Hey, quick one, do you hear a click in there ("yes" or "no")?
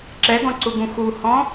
yes